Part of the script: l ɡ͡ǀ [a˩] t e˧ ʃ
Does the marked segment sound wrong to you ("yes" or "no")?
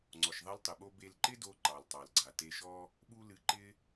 no